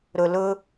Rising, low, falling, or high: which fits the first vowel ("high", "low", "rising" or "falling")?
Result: low